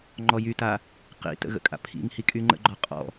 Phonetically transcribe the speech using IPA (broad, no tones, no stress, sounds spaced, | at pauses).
ŋ͡ǃ ɔ j y t a | q ḭ t ə̰ ɣ ə̰ kʼ a̰ pʰ ḭ ŋ h i kʼ y ŋ͡ǃ ə̰ ɡ͡ǃ ɔ qʼ ɔ̰